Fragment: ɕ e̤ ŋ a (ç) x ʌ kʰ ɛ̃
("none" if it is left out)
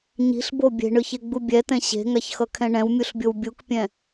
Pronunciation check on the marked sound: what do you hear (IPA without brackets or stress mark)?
ç